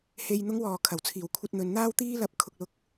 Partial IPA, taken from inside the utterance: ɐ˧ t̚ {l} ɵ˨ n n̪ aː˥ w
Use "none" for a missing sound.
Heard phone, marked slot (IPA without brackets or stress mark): n̪